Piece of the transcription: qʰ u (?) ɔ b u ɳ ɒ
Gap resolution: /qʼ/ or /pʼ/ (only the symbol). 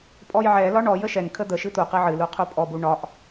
pʼ